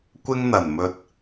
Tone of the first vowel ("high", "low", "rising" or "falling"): high